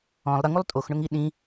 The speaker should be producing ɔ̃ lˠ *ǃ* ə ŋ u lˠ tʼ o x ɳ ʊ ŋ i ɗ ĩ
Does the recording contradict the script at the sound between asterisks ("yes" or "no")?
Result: yes